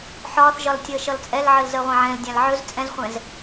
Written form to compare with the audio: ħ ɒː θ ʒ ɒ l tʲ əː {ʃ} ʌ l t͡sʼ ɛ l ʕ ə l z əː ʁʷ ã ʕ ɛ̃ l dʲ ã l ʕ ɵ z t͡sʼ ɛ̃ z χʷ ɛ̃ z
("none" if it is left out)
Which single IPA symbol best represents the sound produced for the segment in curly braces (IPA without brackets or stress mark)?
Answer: ʃ